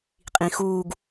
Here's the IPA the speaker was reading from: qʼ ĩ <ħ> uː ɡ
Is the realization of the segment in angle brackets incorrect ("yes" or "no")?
yes